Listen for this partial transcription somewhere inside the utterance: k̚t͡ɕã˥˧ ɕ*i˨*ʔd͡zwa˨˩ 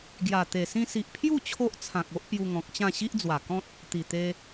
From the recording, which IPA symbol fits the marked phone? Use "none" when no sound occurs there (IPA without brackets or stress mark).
i˦